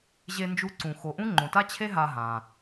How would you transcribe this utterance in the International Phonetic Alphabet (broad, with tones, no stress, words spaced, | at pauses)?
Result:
ʑe˧nd͡ʒu˧ǀũ˩ xo˩ʔũ˥ ŋ͡ǃõ˩ta˥t͡ɕʰe˥ ɦa˧ɦã˩